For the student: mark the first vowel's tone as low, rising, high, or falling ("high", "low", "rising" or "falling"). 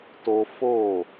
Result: high